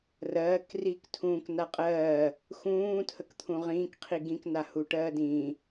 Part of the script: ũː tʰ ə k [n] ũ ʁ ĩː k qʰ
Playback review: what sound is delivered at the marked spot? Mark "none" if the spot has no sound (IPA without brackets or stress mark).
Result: t̪ʰ